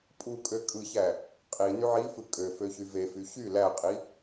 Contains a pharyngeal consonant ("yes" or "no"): yes